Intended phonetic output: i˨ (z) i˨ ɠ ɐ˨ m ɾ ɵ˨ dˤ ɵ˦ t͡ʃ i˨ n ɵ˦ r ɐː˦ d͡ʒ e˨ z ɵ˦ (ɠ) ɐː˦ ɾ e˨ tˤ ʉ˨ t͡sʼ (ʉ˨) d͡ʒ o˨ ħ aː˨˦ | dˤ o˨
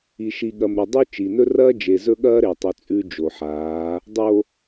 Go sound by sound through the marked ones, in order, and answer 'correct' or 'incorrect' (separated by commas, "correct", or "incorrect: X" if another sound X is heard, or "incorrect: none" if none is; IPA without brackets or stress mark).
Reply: incorrect: ʃ, correct, incorrect: ʉ˦